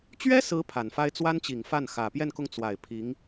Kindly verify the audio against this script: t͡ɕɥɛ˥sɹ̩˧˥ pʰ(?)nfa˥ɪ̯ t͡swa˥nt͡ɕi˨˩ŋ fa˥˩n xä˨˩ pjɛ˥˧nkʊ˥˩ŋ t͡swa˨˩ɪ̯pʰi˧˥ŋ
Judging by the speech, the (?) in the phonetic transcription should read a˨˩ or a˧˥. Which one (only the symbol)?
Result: a˨˩